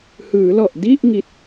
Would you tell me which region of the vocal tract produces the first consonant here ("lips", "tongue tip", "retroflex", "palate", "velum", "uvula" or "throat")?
throat